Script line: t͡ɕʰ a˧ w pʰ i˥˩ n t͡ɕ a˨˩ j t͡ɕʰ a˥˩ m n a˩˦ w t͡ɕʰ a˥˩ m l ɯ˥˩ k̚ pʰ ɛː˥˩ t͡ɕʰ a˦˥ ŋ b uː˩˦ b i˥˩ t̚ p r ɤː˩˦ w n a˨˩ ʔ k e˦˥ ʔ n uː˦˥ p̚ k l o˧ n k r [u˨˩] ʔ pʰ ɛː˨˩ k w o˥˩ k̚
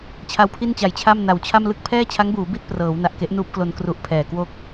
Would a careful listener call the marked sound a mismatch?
no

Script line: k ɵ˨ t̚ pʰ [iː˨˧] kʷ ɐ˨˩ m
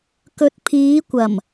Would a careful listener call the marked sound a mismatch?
no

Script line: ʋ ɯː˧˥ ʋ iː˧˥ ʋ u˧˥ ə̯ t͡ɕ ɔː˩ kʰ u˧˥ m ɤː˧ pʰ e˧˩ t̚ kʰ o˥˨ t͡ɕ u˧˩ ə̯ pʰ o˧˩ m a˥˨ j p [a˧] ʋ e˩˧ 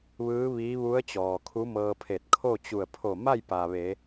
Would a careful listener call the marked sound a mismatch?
yes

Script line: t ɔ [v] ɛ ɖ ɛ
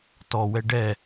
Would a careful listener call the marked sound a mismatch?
yes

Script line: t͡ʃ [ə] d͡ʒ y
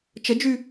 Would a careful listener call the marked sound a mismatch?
no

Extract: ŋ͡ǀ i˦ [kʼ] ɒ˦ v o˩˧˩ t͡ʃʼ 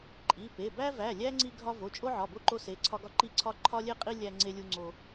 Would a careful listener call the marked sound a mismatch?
yes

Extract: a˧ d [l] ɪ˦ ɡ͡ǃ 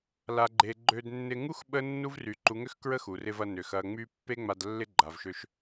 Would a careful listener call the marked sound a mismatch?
yes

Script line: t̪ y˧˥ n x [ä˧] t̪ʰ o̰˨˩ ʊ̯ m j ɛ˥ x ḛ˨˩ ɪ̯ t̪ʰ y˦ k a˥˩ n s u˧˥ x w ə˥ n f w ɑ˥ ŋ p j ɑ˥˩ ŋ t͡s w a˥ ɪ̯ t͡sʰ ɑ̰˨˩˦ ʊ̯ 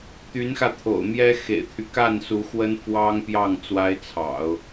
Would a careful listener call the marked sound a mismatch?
no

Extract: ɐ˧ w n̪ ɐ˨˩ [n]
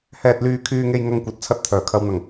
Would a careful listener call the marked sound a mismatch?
yes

